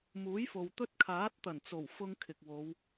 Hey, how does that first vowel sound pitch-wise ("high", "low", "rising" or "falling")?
rising